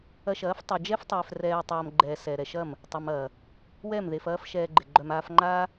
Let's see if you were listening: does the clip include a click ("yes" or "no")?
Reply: yes